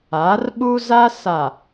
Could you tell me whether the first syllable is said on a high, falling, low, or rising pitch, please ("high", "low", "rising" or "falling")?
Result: rising